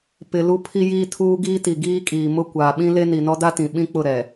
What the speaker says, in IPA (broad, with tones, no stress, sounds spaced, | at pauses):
p ɪ˨ l u˦ pʰ i˦ j iː˦ tʰ uː˦ ɡ iː˦ t i˨ ɡ iː˦ kʼ iː˨ m ʊ˦ kʷ aː˨ ɓ ĩ˦ l e˦ n i˨ n ɔ˦ d a˦ t ĩ˨ ɓ ĩ˦ k͡p ʊ˦˨ ɾ ɛ˨